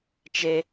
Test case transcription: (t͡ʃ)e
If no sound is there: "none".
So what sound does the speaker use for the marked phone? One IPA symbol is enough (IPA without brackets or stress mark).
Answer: t͡ʃ